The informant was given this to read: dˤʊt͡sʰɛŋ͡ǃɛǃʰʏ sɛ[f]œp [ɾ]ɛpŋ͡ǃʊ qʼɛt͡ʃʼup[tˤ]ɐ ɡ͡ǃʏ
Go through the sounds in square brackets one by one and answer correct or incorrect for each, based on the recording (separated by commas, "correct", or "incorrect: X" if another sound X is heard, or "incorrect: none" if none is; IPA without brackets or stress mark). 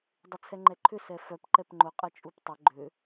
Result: correct, incorrect: ǃ, correct